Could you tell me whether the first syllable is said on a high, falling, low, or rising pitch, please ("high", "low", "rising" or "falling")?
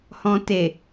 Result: low